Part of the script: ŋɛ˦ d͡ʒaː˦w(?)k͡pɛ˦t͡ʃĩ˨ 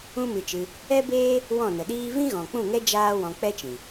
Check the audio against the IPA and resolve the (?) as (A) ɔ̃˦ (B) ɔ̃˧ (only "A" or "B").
B